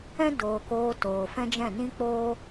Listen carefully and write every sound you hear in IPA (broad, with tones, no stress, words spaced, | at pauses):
ɛ̃˦doː˨ koː˧toː˨fɛ̃˦d͡ʒɛ̃˦˨ nĩ˦k͡poː˦